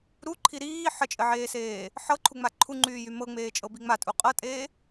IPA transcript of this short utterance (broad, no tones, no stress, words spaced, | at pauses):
ɾuǃʰi ɾiː ħət͡ʃʼɘʕeːseː | ħɤǃʰuŋ͡ma ǃʰuŋ͡ǃyːjy mɤŋ͡meːt͡ʃʼɤbi ŋ͡matʼu qʼɤtʼeː